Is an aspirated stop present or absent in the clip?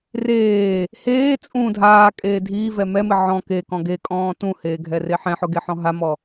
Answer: absent